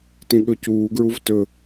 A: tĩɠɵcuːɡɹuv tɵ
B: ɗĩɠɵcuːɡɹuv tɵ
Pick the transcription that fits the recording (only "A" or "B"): A